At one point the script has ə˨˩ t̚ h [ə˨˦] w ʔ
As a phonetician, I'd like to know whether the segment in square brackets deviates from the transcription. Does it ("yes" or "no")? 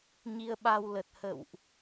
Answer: yes